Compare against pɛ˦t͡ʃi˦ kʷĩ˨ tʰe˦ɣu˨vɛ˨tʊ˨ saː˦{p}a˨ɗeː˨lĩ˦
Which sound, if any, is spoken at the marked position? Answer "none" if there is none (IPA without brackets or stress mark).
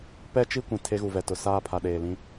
pʰ